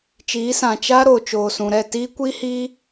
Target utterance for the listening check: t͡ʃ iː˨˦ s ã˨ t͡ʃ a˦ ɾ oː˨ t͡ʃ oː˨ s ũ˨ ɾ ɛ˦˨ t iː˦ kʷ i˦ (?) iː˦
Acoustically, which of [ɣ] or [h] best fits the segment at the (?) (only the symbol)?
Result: h